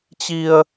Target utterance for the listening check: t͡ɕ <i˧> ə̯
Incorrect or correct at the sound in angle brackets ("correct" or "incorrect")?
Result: correct